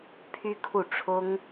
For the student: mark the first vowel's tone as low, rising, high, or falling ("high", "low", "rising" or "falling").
high